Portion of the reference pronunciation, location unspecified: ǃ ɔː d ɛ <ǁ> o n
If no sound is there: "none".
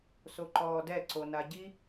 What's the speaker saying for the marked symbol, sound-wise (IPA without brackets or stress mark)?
ǀ